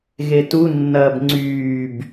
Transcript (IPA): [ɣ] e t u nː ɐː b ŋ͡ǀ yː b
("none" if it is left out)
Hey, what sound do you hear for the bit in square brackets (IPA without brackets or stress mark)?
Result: ɣ